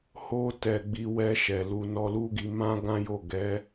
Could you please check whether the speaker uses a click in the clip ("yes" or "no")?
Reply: no